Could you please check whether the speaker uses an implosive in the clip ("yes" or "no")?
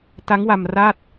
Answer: no